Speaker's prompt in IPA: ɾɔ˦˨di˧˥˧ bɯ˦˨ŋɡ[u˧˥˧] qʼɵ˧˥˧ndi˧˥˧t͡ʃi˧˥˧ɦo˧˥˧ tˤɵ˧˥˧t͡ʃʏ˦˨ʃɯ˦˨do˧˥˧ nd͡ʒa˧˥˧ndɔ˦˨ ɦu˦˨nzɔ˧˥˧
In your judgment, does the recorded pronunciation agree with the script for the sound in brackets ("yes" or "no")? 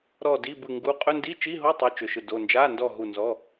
yes